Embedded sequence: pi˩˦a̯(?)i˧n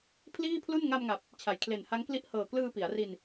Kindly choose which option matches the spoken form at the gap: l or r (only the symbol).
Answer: r